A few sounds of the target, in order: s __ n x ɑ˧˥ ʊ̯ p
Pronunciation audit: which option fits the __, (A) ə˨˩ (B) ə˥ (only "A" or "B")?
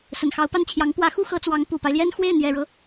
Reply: A